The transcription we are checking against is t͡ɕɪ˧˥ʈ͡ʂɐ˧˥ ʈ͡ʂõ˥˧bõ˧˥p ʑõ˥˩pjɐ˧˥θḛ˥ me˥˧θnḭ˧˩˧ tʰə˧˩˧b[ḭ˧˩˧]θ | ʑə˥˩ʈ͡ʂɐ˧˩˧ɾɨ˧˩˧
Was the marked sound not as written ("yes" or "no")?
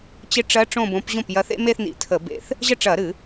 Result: yes